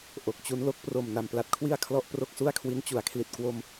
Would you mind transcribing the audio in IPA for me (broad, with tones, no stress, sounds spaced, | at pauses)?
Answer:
ʔ o˨˩ k̚ t͡ɕ u˦˥ n l o˦˥ k̚ p r o˨˩ m n a˨˩ m p l a˥˩ t̚ kʰ w i˥˩ a̯ kʰ l ɔ˥˩ ʔ p r o˥˩ k̚ s u˥˩ a̯ kʰ w i˦˥ n t͡ɕ u˩˦ a̯ kʰ l i˨˩ t̚ k w o˧ m